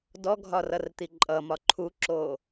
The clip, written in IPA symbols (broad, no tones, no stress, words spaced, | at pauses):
dɔɡʱɒ rʌrt̪iǃʼʌmɒ ǃʰuǁo